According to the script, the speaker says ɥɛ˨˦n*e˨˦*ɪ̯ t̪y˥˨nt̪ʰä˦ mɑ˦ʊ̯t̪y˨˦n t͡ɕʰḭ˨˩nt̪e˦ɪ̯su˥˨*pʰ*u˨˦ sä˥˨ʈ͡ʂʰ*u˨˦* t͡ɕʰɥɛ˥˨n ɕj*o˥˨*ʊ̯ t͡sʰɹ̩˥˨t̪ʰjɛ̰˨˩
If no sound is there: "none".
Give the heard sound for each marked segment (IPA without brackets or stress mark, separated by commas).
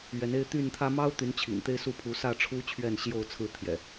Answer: e˦, pʰ, u˦, o˥˨